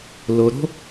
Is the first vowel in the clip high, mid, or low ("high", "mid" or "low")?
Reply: mid